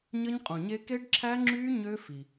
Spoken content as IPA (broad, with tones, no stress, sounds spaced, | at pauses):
ɲ ə˦˥ ɲ qʼ ũ˨ ɲ e˦˥ k e˦˥ ɖ ǁʰ æ˦˥ ŋ͡ǁ yː˦˥ ɲ ø˦˥ f i˨